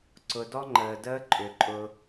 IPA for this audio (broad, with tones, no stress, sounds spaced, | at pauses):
ǀ ʊ˨ d ɔ˦ ŋ͡ǃ əː˨ d əː˦ ǃʼ ʏ˨ ǃʼ ʊ˧